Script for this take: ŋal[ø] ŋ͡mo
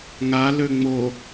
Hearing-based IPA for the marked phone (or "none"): ø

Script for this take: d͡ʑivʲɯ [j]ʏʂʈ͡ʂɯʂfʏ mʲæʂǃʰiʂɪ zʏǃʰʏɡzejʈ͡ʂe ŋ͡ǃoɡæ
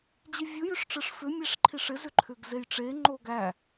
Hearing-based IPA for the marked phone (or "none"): j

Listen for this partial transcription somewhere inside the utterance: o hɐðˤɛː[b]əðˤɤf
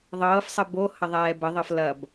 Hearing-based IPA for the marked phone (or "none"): b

